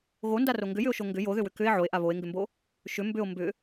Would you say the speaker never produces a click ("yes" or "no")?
yes